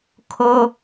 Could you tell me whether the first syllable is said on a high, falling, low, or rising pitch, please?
high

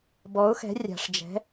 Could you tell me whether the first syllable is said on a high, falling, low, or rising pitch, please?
rising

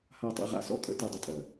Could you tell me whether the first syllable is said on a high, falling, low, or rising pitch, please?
falling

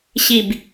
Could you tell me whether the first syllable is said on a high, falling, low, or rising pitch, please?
falling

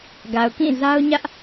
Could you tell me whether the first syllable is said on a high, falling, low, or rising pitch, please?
low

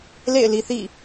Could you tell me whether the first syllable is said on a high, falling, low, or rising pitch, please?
falling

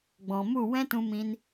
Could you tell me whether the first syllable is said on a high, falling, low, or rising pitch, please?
low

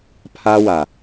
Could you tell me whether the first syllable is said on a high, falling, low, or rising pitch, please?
high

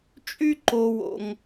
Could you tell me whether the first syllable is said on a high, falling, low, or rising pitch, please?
high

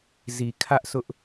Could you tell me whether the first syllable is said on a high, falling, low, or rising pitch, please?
low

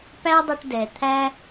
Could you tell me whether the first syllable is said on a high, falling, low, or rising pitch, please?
high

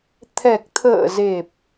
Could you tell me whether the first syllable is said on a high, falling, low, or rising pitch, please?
low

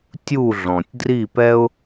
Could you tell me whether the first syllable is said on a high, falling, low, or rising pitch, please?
falling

